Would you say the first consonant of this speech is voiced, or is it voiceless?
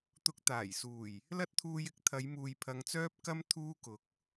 voiceless